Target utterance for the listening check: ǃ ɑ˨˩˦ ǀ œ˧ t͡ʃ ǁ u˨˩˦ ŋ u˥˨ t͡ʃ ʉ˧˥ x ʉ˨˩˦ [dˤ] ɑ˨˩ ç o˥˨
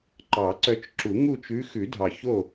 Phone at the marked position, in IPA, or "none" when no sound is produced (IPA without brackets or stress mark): dʱ